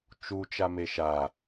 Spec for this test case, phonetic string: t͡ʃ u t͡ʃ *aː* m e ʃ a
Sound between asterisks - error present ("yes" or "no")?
yes